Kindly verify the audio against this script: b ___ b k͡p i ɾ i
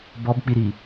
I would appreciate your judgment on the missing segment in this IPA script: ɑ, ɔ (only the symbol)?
ɔ